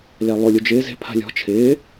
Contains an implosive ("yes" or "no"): no